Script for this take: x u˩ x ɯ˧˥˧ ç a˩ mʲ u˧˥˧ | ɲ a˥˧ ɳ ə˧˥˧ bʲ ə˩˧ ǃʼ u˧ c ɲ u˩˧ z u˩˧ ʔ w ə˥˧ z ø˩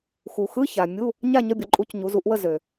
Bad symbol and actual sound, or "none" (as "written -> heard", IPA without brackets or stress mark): ɳ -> ɲ